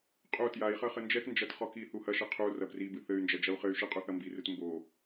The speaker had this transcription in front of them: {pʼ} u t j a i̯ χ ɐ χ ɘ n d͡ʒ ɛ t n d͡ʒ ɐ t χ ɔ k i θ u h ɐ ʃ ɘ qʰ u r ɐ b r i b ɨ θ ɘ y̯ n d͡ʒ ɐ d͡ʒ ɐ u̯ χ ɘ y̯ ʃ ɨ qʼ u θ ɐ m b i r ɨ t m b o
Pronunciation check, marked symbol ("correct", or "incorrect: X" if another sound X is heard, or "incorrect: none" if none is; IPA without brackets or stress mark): incorrect: qʼ